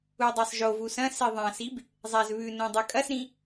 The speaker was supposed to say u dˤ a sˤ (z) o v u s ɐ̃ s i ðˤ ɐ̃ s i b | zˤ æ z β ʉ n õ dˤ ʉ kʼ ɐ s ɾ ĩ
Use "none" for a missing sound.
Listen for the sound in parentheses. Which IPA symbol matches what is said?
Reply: ʒ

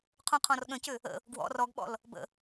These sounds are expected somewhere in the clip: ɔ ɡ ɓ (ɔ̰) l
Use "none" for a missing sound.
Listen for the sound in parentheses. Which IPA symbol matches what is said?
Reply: ɔ̰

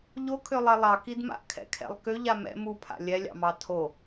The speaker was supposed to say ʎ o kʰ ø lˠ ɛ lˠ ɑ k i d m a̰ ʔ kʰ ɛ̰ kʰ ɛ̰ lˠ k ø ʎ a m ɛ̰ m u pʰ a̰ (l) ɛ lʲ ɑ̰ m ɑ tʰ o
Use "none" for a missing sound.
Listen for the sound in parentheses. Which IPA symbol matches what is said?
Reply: lʲ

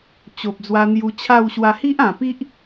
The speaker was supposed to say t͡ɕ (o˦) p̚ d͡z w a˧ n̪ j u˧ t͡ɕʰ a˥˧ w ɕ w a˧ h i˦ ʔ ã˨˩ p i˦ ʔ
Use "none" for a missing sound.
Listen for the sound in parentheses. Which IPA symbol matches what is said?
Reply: o˨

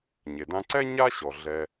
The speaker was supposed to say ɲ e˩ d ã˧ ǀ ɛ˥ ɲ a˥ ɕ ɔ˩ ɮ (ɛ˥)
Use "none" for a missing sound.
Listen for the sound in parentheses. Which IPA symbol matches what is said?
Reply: ɛ˩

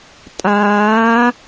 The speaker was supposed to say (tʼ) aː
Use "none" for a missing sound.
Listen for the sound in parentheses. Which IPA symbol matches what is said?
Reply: tʼ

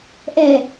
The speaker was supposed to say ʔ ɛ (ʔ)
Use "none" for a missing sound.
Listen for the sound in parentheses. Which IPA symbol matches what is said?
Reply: none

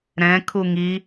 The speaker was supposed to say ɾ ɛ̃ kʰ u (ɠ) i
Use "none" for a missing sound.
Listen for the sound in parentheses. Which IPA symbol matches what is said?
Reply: ŋ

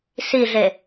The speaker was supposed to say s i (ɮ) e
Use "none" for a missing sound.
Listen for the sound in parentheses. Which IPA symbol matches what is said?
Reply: ɮ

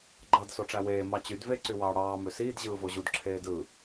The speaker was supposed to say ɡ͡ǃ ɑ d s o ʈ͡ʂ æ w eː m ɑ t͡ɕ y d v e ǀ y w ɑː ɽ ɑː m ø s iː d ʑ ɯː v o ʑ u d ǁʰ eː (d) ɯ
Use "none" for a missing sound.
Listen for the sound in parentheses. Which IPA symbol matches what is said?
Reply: d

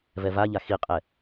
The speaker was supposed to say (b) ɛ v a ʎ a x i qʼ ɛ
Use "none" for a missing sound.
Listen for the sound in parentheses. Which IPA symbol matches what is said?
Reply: v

